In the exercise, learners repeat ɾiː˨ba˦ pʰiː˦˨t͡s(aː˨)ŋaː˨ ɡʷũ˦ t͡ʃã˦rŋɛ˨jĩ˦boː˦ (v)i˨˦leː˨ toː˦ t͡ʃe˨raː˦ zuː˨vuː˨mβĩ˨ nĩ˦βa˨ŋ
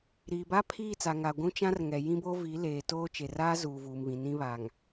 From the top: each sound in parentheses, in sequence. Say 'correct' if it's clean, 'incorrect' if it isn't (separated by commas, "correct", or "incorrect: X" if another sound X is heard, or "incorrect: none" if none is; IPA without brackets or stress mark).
incorrect: a˨, correct